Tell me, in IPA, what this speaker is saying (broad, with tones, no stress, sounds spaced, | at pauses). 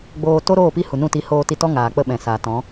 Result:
ɡ͡b oː˧ t o˦ ɾ oː˦˨ p i˦˨ h u˨ n ũ˦˨ t i˧ h oː˧ t i˧ t ɔ˦ ŋ aː˨ k͡p ə˦˨ ɓ ɛ̃˨ s a˨ t ɔ̃˨˦